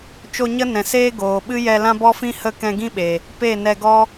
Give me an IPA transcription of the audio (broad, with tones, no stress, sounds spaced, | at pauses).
t͡ʃ o˧ ɲ ə˦ n ɛ̃˨ s eː˦ ɡ oː˨ ɓ ɨ˦ j ɛ˧ l ã˦ b ɔ˦ f ĩ˦ h ə˦˨ k ɛ̃˧ ɡ ĩ˦ ɓ e˨ | p e˦˨ n ɛ˧ ɡ ɔ˦